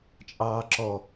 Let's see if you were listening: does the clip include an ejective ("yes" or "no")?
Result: yes